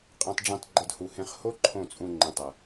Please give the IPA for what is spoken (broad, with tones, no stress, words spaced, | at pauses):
qʼẽ˧tˤɖ͡ʐĩ˧tˤ ɡ͡ǃɐ˧dhu˨ hẽ˧χ ho˦ ǃʰõ˦˨t͡sʼũ˧ ŋ͡ǃẽ˨tˤɐ˨